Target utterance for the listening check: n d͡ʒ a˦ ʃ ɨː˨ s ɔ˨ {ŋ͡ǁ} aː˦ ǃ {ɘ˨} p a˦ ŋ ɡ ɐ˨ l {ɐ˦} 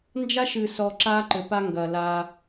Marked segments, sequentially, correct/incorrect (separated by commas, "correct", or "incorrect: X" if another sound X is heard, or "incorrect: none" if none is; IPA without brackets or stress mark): incorrect: ǁ, correct, incorrect: a˦